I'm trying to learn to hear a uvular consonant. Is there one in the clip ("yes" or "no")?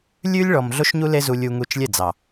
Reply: no